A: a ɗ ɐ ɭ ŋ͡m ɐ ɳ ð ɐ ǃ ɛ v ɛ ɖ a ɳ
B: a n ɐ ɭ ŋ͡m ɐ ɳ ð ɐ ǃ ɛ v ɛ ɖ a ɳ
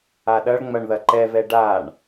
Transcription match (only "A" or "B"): A